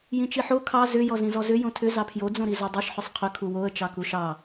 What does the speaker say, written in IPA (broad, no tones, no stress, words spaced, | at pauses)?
jĩt͡ʃiħo kʰɑ zʏ jɔzĩzɔzʏ jõtʰʏ zɑpʰjo d͡zõɾizodˤiʃ ħʏsˤqʰʏ kʰuwoə̯ t͡ʃɑkuʃɑ